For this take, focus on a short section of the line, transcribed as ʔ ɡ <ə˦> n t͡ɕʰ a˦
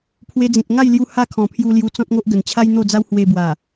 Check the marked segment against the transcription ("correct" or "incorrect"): incorrect